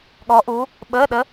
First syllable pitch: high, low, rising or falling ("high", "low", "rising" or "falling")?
rising